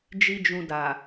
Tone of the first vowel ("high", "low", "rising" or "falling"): high